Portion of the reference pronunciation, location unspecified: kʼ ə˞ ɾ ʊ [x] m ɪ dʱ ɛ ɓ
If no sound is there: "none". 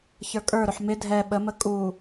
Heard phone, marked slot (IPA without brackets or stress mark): ħ